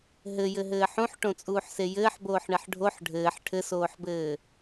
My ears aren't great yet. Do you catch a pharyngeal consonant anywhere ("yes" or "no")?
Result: yes